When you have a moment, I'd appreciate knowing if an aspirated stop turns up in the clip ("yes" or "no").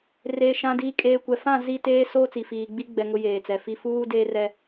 no